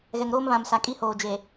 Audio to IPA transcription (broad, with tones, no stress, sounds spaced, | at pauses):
ɣ ɛ˨ ŋ ɾ oː˦ m β ã˨ m s a˨ kʼ i˦ h oː˨ d͡ʒ e˨